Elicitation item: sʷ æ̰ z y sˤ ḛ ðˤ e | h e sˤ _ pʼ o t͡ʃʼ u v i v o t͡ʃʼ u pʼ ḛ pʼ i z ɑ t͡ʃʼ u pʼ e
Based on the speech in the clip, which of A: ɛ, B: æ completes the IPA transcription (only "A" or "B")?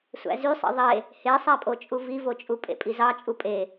B